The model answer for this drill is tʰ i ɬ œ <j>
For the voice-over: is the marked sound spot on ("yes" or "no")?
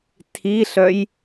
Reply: yes